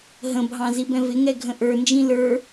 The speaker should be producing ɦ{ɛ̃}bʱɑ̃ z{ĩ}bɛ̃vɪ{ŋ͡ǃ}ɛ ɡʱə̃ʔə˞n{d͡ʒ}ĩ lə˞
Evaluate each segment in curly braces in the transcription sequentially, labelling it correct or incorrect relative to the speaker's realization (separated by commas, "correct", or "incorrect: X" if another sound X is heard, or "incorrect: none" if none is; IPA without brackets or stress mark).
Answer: incorrect: ə̃, incorrect: i, incorrect: ŋ, correct